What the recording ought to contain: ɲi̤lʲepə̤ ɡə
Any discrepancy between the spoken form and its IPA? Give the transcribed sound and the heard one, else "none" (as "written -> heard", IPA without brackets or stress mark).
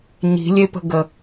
none